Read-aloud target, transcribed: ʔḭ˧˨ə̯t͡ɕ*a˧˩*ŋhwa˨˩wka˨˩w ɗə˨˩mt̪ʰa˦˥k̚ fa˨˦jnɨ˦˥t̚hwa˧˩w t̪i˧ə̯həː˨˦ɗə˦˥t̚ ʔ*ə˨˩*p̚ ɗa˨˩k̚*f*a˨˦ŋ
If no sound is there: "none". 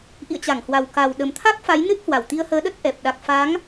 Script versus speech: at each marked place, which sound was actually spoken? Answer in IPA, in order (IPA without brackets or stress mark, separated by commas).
a˧˩, ɛ˨˩, f